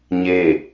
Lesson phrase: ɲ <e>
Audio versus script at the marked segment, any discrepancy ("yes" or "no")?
no